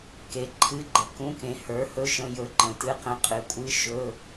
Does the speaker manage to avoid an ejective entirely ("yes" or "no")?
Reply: no